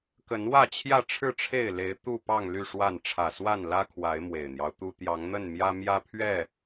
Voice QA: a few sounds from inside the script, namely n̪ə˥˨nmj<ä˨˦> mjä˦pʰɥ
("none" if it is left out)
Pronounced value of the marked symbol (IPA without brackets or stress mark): ä˦